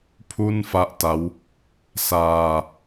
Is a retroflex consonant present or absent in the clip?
absent